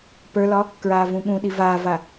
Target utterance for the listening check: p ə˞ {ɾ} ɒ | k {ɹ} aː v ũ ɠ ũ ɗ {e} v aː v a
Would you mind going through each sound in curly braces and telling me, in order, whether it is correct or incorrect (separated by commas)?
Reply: incorrect, correct, incorrect